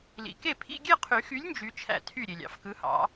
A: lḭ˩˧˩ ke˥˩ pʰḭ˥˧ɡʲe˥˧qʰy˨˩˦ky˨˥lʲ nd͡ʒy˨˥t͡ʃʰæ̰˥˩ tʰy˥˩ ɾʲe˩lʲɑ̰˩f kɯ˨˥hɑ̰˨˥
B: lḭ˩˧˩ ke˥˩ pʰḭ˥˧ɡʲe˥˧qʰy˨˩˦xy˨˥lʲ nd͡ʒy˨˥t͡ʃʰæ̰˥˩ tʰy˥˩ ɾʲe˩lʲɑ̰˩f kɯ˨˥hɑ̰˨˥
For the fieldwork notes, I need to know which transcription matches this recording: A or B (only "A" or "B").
B